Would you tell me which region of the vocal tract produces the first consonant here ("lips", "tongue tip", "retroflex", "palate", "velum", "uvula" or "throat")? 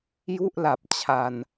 palate